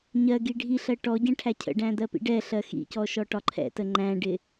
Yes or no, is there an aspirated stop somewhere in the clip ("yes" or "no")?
yes